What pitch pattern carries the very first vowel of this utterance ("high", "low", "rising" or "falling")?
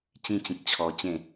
high